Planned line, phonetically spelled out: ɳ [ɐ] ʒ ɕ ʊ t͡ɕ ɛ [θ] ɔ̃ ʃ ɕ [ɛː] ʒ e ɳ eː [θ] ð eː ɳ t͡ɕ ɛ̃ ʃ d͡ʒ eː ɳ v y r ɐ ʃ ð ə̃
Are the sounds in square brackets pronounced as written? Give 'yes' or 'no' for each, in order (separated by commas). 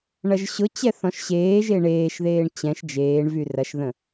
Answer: yes, yes, no, no